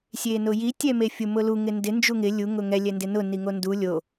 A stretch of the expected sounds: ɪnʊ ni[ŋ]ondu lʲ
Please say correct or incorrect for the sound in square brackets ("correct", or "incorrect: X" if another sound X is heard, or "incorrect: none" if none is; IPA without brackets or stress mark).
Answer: correct